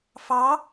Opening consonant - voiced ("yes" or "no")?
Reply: no